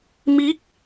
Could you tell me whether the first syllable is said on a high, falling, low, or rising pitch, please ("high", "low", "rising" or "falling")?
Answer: rising